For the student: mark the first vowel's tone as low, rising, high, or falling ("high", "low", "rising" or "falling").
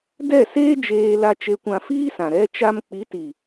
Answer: falling